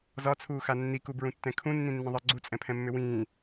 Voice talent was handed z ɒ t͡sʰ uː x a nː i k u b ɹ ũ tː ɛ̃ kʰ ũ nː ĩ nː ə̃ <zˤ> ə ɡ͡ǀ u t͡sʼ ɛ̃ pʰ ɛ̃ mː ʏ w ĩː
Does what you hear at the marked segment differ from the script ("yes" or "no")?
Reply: yes